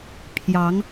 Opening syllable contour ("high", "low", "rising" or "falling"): rising